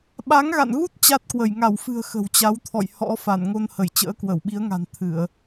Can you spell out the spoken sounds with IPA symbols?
ɓ a˨˦ ŋ ɣ a̰˧˨ n ɣ u˦˥ t̚ t͡ɕ a˦˥ t̚ k w ə˧˩ j ŋ a˧˩ w f ɨ̤˨˩ ə̯ x ə̤˨˩ w t͡ɕ a˨˦ w t̪ʰ ɔ̰˧˨ j h ɔ̰˧˥ f a˧˩ n ŋ o˧ n h ə˧˩ j t͡ɕ ə̰ː˧˥ k w ə˧˩ w ɓ i˨˦ ə̯ ŋ a̤˨˩ n t̪ʰ ɨ˧˩˨ ə̯

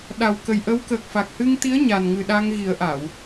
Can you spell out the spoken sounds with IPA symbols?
ɗ a˨˩ w k ə˨˩ j ʔ ə˧˥ w k əː˨˩ k̚ f a˨˩ k̚ h ɨ˧ ŋ t̪ i˧˥ ə̯ ɲ a˨˩ n ŋ ɨ˨˩ ɗ a˧ ŋ ɣ i˨˩˦ ə̯ ʔ a˨˩˨ w

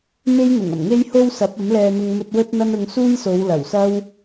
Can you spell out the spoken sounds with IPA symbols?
m e˥ j n̪ ʊ˨˩ ŋ ɐ˨˩ m ŋ e˥ j h o˧ w s ɐ˨˥ p̚ ɐ˨˥ m l ɛː˧ n̪ ʊ˧ ŋ m ɵ˧ t̚ w ɵ˥ t̚ n̪ ɐ˥ n ʊ˧ ŋ s uː˥ j s o˨˧ w l ɐ˨˩ w s ɐ˥ w

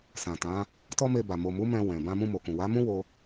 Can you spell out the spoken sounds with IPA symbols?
s ã˨ t ã˨˦ | t ɔ˦ m e˧ b a˨ m o˨ m u˨˦ m ɛ̃˧ w ɛ̃˨ b ã˧ m ũ˧ m o˨ k ũ˨ w a˨˦ m ũ˦ w o˧

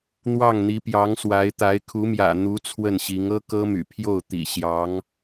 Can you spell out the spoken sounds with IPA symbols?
n̪ w ɑ˥˩ ŋ n̪ i˧˥ p j ɑ˧˥ ŋ s w a˧˥ ɪ̯ t̪ a˧˥ ɪ̯ kʰ u˧˥ m j ä̰˨˩ n̪ u˧˥ t͡sʰ w ə˥˩ n ɕ i˧˥ ŋ ɤ˥ k ɤ˥ m y̰˨˩ pʰ j o˥˩ ʊ̯ t̪ ḭ˨˩ ɕ j ɑ˧˥ ŋ

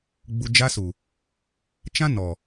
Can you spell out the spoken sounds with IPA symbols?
ɡ͡b u˨ d͡ʒ a˦ s u˨ | t͡ʃ ã˦ n ɔ˨

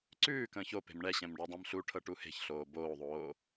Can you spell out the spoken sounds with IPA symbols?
ǀ ʉː k ə̃ː ç o p e̤ m ɳ ɛ ɕ ɛ̃ m ɖ ɔ dˤ ẽ m ɬ u ʈʰ ɤ ʈ u h e̤ ç ɬ oː b oː ðˤ oː

